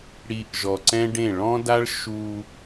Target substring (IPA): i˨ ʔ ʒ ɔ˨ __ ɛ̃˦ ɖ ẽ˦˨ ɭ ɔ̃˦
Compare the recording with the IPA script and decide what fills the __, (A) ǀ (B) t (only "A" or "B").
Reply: A